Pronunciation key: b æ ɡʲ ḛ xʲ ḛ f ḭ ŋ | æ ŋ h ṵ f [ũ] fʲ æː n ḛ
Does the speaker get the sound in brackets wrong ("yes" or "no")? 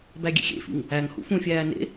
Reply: no